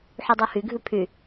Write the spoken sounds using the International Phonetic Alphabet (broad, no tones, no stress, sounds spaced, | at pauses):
ħ y dˤ o h y ɡʱ ʉ pʰ y